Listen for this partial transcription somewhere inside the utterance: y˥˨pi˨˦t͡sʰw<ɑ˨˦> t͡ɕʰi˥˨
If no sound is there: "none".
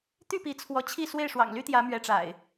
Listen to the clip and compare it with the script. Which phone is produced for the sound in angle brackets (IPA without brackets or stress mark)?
ɔ˨˦